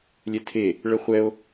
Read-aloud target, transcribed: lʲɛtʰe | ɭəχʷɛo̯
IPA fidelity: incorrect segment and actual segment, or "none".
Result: none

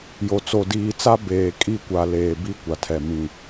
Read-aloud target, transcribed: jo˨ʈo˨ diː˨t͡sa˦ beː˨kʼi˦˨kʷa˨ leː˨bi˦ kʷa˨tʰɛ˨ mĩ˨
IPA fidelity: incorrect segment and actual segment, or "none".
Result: ʈ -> t͡s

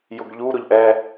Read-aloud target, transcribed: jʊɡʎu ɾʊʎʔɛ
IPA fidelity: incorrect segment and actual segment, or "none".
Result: none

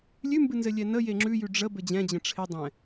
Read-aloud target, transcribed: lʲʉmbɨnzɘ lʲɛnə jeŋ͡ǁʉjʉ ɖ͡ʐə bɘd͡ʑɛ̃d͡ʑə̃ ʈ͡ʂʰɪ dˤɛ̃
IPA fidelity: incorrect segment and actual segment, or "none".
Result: none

